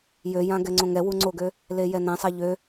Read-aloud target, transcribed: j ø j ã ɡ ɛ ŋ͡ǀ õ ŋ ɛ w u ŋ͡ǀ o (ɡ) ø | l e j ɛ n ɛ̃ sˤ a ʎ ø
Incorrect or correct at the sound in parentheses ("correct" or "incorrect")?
correct